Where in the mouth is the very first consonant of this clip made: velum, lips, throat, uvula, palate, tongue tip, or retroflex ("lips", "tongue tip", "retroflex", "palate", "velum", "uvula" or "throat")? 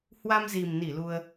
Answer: throat